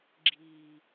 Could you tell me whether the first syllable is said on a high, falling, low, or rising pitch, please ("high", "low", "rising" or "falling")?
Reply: low